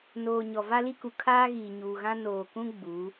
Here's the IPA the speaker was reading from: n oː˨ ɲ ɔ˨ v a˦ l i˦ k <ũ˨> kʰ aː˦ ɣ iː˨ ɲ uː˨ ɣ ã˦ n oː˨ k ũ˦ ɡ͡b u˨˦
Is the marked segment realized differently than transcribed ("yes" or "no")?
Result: yes